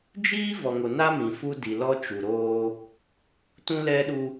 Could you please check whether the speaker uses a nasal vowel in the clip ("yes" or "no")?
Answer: yes